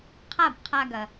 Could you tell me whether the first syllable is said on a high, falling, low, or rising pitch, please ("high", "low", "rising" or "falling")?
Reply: falling